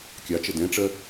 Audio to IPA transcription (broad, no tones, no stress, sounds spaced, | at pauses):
kʲ ɑ t͡ʃ ə d ɛ̃ ʈ͡ʂ ɜ